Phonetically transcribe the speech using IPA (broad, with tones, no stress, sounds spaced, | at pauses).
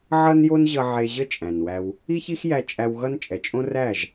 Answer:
ʕ ʌ˦ n j o˦ n ʑ ʌ˧ ʕ e˧ ʑ ə˦ t͡ʃʼ æ̃˨ n w æ˧ w | i˦ ç i˦ x j æ˧ t͡ʃʼ æ˧ w ɣ ʌ˦ n t͡ʃʼ ɛ˨ t͡ʃʼ õ˦ r æ˦˨ ʒ